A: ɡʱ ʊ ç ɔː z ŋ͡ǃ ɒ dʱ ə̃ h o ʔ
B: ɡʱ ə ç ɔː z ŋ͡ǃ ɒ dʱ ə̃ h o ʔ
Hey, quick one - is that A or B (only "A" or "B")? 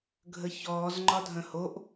B